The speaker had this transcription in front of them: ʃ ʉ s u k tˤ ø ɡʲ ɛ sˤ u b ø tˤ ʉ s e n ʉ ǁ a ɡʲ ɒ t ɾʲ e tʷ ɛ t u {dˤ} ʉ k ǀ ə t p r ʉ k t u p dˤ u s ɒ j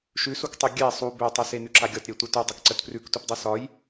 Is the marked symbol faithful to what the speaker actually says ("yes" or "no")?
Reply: yes